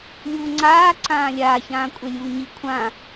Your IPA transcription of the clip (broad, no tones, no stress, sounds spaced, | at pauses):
lʲ uː ŋ͡ǀ aː ǀ ãː lʲ aː ç ãː kʷʼ ɛ lʲ uː ɲ i kʷʰ ã